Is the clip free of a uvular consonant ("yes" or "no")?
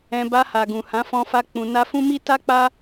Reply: yes